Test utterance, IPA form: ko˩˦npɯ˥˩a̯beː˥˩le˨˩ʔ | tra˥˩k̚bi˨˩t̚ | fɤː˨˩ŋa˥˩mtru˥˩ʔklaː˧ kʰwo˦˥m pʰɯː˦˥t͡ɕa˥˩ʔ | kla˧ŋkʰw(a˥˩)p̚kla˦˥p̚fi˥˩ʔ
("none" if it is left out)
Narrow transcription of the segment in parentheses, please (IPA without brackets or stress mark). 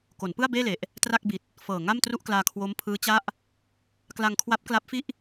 a˦˥